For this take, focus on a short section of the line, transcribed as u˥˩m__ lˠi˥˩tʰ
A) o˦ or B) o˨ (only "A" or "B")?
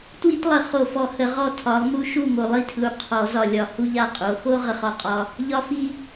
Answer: B